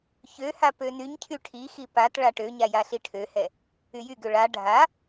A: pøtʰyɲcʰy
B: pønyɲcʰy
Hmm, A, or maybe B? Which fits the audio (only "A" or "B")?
B